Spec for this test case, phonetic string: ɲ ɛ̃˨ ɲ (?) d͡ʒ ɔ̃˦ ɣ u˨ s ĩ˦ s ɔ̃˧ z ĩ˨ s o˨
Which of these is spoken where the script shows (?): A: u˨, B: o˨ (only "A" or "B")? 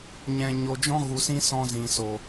B